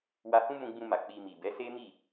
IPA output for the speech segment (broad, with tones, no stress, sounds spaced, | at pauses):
w a˧ h ũ˦ m ũ˧ ɡ͡b ũ˧ m a˨ k͡p i˧ m i˨ b ɛ˨˦ s e˦ m i˦˨